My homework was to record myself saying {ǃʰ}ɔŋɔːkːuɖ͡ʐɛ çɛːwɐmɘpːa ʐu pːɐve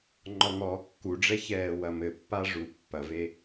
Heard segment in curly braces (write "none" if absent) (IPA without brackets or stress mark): ŋ͡ǃ